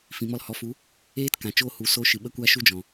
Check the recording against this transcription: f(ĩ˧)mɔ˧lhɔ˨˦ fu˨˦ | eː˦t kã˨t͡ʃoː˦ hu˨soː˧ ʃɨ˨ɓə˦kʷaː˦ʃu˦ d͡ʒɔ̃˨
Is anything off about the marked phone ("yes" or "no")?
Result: yes